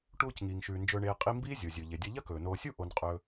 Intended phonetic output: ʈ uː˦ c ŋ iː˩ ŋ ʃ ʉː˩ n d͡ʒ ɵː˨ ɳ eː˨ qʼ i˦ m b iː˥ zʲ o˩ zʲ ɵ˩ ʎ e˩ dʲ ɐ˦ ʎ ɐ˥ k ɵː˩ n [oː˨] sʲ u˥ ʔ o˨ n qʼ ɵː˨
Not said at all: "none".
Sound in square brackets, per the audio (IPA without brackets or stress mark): oː˨